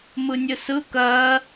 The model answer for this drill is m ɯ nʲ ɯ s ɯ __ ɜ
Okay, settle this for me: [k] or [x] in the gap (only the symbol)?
k